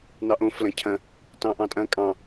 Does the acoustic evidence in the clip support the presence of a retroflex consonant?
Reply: no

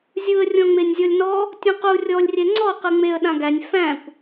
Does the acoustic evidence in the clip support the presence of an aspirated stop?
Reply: no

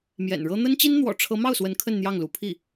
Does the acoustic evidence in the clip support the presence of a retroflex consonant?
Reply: yes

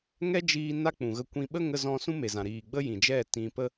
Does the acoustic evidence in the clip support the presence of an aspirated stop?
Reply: no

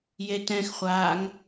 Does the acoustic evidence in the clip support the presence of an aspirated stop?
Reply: no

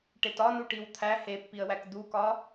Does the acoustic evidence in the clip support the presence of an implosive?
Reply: no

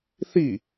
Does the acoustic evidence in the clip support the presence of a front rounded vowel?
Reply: no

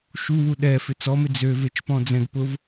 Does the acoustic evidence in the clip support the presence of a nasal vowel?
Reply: yes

